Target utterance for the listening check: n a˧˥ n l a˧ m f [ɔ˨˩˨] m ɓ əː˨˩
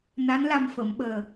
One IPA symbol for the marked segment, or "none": ə˨˩˨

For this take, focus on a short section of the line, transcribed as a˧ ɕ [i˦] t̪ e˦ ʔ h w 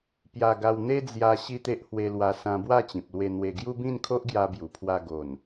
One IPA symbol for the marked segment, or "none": i˦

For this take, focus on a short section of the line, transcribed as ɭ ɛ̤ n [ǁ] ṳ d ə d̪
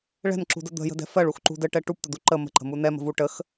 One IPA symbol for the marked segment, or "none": ǁ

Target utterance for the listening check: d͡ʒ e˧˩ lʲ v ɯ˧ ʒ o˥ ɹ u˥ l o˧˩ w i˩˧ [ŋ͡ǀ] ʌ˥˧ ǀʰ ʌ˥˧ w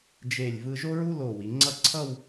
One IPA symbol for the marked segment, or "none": ŋ͡ǀ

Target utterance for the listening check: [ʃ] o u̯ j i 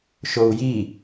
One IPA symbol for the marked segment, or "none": ʃ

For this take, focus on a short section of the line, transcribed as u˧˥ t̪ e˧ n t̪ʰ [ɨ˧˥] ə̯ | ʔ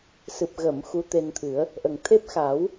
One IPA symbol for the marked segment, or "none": ɨ˨˩˦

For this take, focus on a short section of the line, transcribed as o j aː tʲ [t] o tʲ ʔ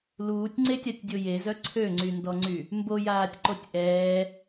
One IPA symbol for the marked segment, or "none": ǃ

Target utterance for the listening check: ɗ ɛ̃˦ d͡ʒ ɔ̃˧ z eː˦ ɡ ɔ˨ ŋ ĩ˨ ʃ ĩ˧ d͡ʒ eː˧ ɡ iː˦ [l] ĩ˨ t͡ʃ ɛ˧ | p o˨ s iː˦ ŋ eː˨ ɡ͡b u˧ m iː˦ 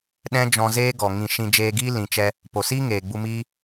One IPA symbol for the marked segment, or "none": l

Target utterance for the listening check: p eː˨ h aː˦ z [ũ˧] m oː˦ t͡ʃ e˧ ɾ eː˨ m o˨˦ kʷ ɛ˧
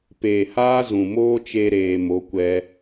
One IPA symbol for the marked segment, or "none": ũ˨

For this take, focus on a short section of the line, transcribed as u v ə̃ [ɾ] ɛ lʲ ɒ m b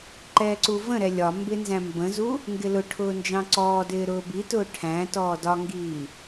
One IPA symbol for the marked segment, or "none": ɾ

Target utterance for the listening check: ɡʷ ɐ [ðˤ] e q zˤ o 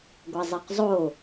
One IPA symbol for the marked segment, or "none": zˤ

